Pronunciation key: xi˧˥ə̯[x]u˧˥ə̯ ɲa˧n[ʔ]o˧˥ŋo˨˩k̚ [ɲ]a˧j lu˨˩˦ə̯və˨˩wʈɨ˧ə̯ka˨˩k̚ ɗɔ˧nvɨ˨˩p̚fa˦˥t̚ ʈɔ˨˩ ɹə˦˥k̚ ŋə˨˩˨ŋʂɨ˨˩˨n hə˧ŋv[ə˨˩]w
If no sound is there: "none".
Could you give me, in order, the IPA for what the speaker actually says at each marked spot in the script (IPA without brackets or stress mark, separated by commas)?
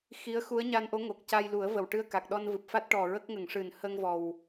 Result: x, ʔ, c, ɔ˨˩